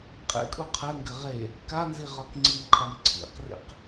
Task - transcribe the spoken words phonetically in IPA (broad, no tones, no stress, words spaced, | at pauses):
qʼḛkʼu qʰɘŋɡɘ ʁe | kanzi ʁɒkŋ͡ǀimqʰɤm ǀʰḭqrḭq